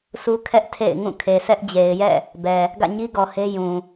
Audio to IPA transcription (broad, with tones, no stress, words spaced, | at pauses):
su˦kʰɛ˦ʔ tʰḛ˦˨ɪ̯ŋũ˦˨ kʰe˨sɛ˦ʔd͡ʑe˨ɪ̯jɛ̰˦˨ | bɛ˨ | ɡä̰˦˨ɲi˦ɡɔ˨ he˦jũ˨